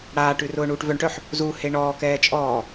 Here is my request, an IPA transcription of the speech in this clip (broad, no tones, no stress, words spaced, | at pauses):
ɽaːʈʉ rʊːɳuːʈvœɳʈœħ | zu heɳɔːkɛː t͡ʃʼɔː